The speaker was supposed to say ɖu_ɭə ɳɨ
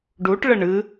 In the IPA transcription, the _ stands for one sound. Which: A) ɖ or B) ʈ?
B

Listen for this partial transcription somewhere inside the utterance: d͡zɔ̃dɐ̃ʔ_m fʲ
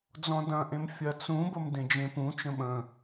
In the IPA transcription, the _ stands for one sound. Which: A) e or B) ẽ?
B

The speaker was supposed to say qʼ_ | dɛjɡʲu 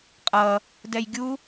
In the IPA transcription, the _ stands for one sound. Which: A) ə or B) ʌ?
B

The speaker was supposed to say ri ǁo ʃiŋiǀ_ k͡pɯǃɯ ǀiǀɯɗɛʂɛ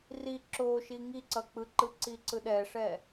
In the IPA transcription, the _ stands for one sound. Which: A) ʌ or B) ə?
A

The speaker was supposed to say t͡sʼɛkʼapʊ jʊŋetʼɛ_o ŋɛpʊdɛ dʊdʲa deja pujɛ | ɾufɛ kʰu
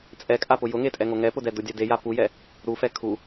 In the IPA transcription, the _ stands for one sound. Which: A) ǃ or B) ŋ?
B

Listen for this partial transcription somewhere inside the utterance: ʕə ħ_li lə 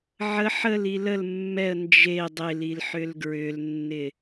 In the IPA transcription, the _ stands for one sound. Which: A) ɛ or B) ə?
B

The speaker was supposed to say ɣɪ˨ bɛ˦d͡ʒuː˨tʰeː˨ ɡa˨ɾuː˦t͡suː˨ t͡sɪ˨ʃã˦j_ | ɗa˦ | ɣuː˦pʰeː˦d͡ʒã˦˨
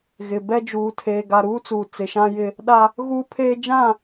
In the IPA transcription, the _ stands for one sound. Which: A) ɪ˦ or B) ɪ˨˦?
A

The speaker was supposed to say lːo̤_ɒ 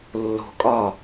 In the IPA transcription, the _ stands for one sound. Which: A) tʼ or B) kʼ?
B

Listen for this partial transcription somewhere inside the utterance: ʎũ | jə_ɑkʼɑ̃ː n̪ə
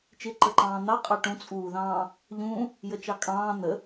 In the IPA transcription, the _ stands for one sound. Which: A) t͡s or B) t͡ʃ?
B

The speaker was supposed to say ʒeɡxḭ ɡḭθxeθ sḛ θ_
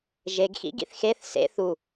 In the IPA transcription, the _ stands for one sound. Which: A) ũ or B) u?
B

